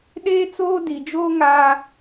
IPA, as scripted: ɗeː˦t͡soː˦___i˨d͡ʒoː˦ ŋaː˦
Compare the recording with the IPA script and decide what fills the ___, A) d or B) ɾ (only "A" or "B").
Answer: A